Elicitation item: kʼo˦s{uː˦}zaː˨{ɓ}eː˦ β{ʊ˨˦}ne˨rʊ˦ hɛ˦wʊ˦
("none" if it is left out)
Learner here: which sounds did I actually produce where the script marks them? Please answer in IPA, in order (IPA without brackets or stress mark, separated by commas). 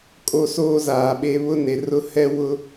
oː˦, ɓ, ʊ˦